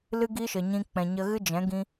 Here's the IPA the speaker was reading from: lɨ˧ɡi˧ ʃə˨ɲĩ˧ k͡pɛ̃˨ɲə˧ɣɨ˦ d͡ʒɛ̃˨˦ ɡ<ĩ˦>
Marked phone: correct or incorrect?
correct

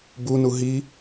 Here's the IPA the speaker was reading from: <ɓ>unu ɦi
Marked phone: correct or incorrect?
incorrect: b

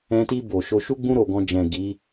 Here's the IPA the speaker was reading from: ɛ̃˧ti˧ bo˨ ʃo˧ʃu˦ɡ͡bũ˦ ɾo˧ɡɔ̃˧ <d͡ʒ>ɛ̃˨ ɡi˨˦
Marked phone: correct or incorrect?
correct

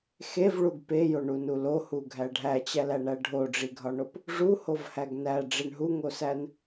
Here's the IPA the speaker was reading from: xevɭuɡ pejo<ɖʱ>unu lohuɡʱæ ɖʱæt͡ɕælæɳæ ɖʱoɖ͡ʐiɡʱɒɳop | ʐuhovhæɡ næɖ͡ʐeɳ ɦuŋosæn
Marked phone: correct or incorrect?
incorrect: ɳ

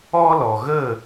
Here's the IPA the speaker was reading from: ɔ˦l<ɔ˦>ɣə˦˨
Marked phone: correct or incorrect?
incorrect: ɔ˨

